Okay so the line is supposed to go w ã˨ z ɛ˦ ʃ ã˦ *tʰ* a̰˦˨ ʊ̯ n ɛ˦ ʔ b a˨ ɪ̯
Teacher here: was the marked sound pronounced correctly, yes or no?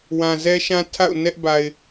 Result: yes